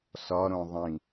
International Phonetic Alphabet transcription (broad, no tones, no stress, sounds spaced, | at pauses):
s ɒ ɾ õ ðˤ ĩ